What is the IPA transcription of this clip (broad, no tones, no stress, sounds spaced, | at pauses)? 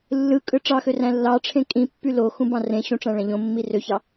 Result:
lː ɯ kʼ ɯ ʈ͡ʂ ɑ x ø r æ̃ lː ɑ ʈ͡ʂʰ ẽ kʼ ĩ pː y l o x ũ b ɑ̃ r ẽ ɕ ũ ʈ͡ʂ æ̃ ɭ æ̃ ʎ õ mː i r ø ç ɑ